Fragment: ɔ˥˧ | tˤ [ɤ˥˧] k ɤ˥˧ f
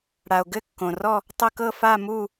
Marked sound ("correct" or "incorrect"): correct